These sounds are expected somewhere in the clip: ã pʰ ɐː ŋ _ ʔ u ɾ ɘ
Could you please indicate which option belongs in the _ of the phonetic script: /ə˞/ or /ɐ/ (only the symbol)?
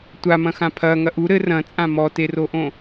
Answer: ɐ